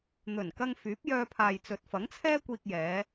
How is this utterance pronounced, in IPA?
n̪ɵ˨˩nkɐ˧ŋ fyː˨˥p̚jœː˧ pʰaː˨jt͡sɵ˨t̚fɐ˨˥ŋt͡sʰɛː˥ kʷiː˧k̚jɛː˨˧

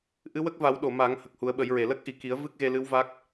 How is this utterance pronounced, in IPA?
ʔɨ˧˥wə˦˥k̚va˨˩˦w ɗo˨˩˨ ma˨˩˦ŋ hə˨˩k̚hu˨˩˦ə̯ɓə˨˩˦jɹe˨˩˨ lə˦˥k̚ʔi˨˩˨ki˨˩˦ə̯ vɨ˦˥k̚ɣe˧lɨ˧˥w va˦˥k̚

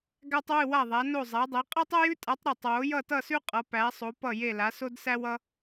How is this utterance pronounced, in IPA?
ɡæ˥tˤwɨ˥˧wa˥˧ðˤæ˧˥ no˥˧zˤæ˧˥dˤe˧˥ qʼa˥tˤʌ˥jʉ˥tʼa˧˥tˤ ɾʌ˥˧tˤ wo˧˥jʌ˥˧tʌ˥˧sʉ˥ qʼʌ˧˥pæ˧˥sˤo˧˥ pʌ˥˧je˥˧la˧˥ so˥dsæ˥w ʌ˥

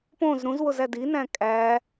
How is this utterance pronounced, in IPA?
põz ɾũzwozæd inæ̃ kʼæ

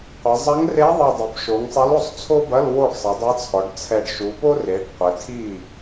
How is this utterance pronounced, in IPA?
qʷɐ˩˧ zˤɐ˧˥ŋre˧˥ðˤɨ˨˩ dˤi˩˧bʃo˩˧ŋsˤɛ˧˥lo˥˩sˤ t͡sʰo˥bɐ˧˥˧l wo˥˩ɖsˤɨ˩˧dˤɘ˧˥t͡sʰɔ˩˧ɖ t͡sʰɛ˨˩ɖʃu˩˧po˥re˩˧ɖ qʷɘ˩˧tʰi˥˩

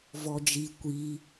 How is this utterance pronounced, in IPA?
vɔd͡ʒi kʷi

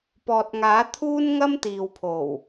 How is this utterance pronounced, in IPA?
pɔː˨t̚ŋaː˨˥t̪ʰuː˥n ŋɐ˥mt̪iː˨wpʰo˨˩w

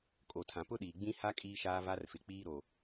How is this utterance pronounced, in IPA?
kʼo˨tʰã˨ pʊ˦ɗiː˨ɡ͡bĩ˦ ha˦ kʼiː˦ʃaː˦ va˦rfɪ˨k͡piː˦ ɾo˨

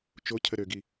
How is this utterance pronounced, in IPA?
t͡ʃocʰə ɾøɡi

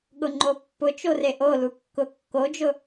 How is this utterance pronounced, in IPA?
ɠʊŋ͡ǃopːʊt͡ʃo reʔo lukːʊ kːod͡ʒʊ

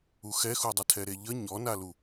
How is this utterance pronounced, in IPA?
uxɛxudˤə tʰɛɾeʎə ɲɔnalu

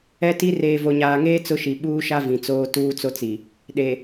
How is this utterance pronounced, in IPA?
ɛ˦ti˦ reː˨vo˨ɲaː˨ŋeː˦ t͡sʊ˦ʃi˨ ɓuː˦ʃa˦ vĩ˨t͡soː˦ tuː˦t͡so˦t͡si˨ | ɗe˨

